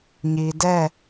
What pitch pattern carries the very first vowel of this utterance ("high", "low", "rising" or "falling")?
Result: low